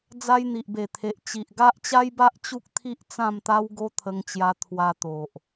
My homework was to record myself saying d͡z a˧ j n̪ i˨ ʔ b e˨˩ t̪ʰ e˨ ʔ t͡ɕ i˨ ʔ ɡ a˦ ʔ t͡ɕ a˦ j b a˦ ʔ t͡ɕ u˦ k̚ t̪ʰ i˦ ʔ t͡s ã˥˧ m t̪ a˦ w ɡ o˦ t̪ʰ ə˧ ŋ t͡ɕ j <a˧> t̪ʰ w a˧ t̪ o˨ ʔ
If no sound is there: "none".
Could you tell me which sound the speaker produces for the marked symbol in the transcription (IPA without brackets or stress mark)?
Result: a˧